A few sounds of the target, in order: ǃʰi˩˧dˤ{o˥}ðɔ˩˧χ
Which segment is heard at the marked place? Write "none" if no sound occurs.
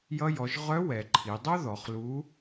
o˥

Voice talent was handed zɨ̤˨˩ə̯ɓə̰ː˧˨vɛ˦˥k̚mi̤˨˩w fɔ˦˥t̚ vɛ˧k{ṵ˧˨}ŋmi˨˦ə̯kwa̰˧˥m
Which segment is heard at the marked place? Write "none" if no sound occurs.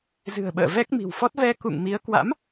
ṵ˧˨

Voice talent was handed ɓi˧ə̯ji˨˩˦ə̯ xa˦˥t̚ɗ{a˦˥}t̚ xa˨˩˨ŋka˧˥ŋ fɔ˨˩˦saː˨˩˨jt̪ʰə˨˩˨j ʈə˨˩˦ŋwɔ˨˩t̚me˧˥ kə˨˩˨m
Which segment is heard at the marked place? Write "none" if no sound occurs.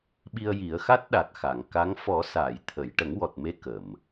a˨˩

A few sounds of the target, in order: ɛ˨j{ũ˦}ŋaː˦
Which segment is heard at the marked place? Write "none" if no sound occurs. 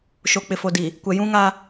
ũ˦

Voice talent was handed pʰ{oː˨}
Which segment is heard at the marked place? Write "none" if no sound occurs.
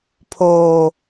oː˨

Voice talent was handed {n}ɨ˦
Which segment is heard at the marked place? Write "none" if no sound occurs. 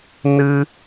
n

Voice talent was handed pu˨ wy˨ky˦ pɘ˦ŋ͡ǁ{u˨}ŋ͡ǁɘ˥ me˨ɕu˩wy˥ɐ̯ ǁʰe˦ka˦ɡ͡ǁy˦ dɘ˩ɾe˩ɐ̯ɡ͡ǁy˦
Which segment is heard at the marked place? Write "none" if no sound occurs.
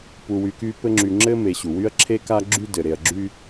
y˨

